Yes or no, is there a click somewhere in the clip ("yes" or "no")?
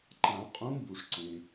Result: yes